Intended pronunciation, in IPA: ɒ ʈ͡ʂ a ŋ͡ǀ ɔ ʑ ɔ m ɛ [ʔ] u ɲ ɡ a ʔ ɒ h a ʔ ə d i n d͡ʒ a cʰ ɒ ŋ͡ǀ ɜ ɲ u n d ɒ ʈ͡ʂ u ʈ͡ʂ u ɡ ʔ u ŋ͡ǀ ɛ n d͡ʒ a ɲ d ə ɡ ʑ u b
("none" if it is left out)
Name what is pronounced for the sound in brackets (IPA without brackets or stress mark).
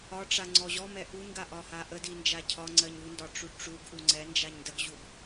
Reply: ʔ